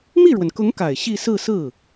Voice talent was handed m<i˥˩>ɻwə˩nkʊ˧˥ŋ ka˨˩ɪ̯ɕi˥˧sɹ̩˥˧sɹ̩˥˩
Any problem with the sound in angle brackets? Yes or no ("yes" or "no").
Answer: no